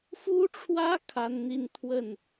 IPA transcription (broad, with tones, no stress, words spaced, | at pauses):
fu˦ʈ͡ʂʰwä˦ kʰa˦nn̪i˦n t̪ʰwə˥˨n